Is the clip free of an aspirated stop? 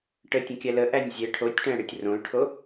no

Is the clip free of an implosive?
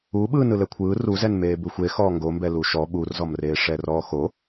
no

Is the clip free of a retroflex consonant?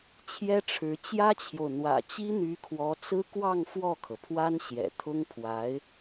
no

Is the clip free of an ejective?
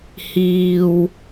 yes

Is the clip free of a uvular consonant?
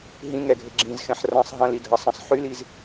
yes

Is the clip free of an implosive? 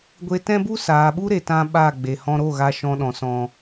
no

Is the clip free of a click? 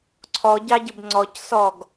no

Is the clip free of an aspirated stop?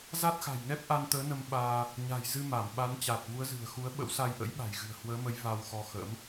yes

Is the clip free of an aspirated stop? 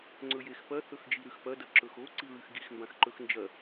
yes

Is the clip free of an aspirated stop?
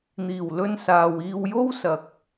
yes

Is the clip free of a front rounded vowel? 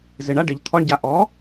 yes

